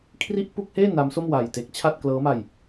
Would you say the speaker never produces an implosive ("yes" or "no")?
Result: yes